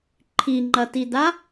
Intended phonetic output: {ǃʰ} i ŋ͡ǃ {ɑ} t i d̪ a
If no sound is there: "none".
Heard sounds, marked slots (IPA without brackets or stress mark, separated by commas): ǃʰ, ɐ